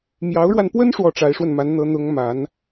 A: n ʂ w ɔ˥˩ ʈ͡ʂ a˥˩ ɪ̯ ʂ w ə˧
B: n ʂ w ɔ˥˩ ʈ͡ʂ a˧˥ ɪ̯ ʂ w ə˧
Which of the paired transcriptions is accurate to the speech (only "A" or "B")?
B